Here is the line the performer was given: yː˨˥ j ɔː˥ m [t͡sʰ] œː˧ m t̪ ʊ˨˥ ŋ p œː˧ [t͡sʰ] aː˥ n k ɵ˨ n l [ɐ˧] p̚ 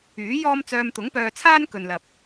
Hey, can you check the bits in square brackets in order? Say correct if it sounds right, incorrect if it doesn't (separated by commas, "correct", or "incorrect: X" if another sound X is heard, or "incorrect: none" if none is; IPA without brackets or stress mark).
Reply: incorrect: t͡s, correct, incorrect: ɐ˨